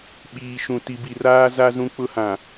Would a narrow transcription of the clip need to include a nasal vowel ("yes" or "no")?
yes